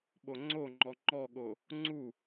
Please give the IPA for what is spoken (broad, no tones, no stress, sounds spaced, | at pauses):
ɓ o ŋ͡ǀ o ŋ͡ǃ ɔ ŋ͡ǃ ɔ ɠ o | ŋ͡ǀ u